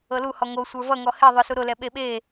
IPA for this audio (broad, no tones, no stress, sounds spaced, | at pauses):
ɤ l u h ɔ ŋ o sʷ ə˞ v ʌ ŋ ɔ h e ðˤ ʊ s u ɾ ʊ l ɛ ɓ e ɓ e